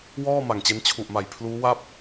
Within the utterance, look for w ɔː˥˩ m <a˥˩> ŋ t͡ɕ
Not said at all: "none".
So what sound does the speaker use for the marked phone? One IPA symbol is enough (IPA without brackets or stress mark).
a˨˩